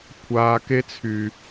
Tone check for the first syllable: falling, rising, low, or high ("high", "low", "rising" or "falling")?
low